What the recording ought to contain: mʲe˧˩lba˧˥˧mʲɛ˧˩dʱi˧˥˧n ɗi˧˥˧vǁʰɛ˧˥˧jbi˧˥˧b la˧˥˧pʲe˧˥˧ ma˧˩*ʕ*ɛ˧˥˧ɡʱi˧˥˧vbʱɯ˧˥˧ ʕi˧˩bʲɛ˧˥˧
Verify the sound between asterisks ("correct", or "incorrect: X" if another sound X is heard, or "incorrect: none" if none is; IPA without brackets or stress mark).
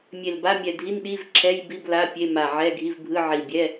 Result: correct